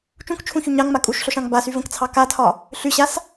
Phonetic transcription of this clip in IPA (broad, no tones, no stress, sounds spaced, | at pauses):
t͡ʃ ũ k t͡ʃʰ ũ ç y ɲ ɑ ŋ m a kʼ u ʃ ɬ o ʃ ɑ̃ ŋ b a s y v ə̃ k t͡sʰ ɑ k a tʰ ɒ | ɬ y ɕ a s